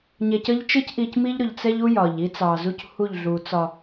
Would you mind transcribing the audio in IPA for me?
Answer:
ɲ ɛ˨ c ə˦ ʎ t͡ʃ ɪ˦ c ʔ i˨ c m i˦ ʎ ɾ ʊ˨ ʎ t͡s ɛ˦ ʎ u˦ j ɒ˨ ʎ i˦ t͡s ɑ˨ z u˦ c h u˦˨ ʎ ɮ u˨ t͡s ɒ˨

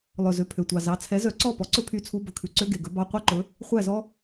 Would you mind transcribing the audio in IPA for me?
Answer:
lˠ œ˨˩ z ø˨˩ pʰ ø˨˩ tʷ ɑ˨˩ z ɑ˨˥ t͡sʰ ɛ˨˥ z œ˨˥ ǀ ɔ˥˨ p ɔ˨˥ ǀ ɵ˥ pʰ y˧˥˧ t͡sʰ u˧˥˧ b ɵ˨˩ kʰ ʉ˨˩ ǀ ø˧˥˧ ɡ e˨˩ ɡ ɵ˨˥ b ɑ˧˥˧ qʷ ɛ˥˨ ǃ ɵ˨˥ | χʷ æ˥˨ z ɔ˥

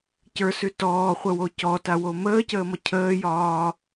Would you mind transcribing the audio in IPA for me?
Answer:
c ə˞ s ʉ t ɔː χʷ ə w o c ɔ t a w o m əː c əː m ɔ cʰ əː j ɒː

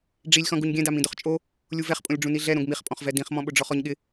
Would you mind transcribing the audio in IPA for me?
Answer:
ɖ͡ʐ i lʲ x ɔ̃ ɡ u ɲ ɡʲ ɛ̃ d a m ĩ d ʊ χ t͡ʃʼ o | lʲ u v ɛ χ pʼ õ lʲ ɖ͡ʐ ũ n i ɮ ɛ ɾ õ ɡ m i χ pʼ ɔ̃ χ v ɛ d ĩ χ m ɔ̃ ɓ ʊ ɖ͡ʐ ɔ χ ɔ ɲ ɠ ɪ

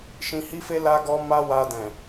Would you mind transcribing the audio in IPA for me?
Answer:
ʃ ĩ˧ h i˦ f e˦ l a˦ ɡ ɔ˦ m a˦ w a˧ d ɛ̃˨

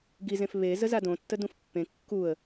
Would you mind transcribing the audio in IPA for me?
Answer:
ɡ i z ẽ f β e z ə z a d õ tː ə d ũ f pː ẽ kː u ə̯

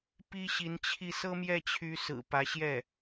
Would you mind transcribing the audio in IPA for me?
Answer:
p i˥ ɕ i˧˥ n t͡ɕʰ i˥˩ s ɤ˥ m j ɛ˥˩ t͡ɕʰ y˧˥ s ɹ̩˨˩ p ä˧˥ ɕ j ɛ˥˩

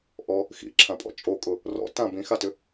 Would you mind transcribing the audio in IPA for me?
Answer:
ʔ ɔ | x ḭ ǁʰ ã pʼ ɔ̰ t͡ʃʼ o kʼ ʊ | r ɔ̰ t ã b ĩ x a t ʏ

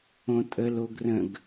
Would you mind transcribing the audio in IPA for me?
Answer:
õ tʼ ə l o ɡ r ə̃ ɡ

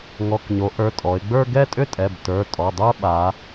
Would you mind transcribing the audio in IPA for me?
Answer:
ŋ ɔ˩˧˩ k ɲ o˩˧ ʔ ə˞˩˧˩ tʼ ɔ˩˧ ɪ̯ ɡ͡b ə˞˥˧ ɡ ɛ˥˧ tʼ ʏ˥˧ tʼ ɛ˩˧˩ b t ə˞˩˧˩ tʼ ɔ˩˧˩ dˤ ə˞˥˧ ɓ a˩˧

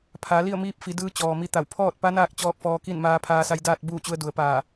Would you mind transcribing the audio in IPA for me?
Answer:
pʰ aː˩˧ l i˥˨ ə̯ m iː˧ p̚ f i˩˧ d ɯː˧˥ t͡ɕ ɔː˩ m i˧˥ t̪ a˧˩ w pʰ ɔː˥˨ t̚ p a˧˥ n aː˥˨ k̚ t͡ɕ ɔː˥˨ k̚ f ɔː˧ k i˥˨ n m aː˧ pʰ aː˧ s a˧ j d aː˥˨ t̚ b uː˥˨ t͡ɕ u˧ ə̯ d u˩˧ ə̯ p aː˧˩

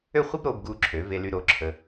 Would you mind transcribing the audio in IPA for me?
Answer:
ø˥˧ χʷ ɛ˥ b ɾ oː˧ b ɡ u˧ ǁʰ ø˩˧ v e˧ l y˧ ɾ o˩˧ ǁʰ ə˧

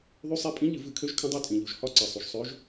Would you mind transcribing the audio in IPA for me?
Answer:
ðˤ y˧˥ sˤ e˧˥ pʼ ĩ˧˥ ʎ ɨ˧˩˧ v ɨ˧˩˧ kʰ ø˧˥ ʒ kʰ ə̃˧˥ dˤ u˧˥ tʼ ĩ˩ ʎ u˩ ʒ h ɒ˧˥ ǀ e˩ sˤ u˩ ʒ sˤ ø˧˥ ʒ

